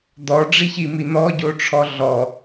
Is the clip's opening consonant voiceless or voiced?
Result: voiced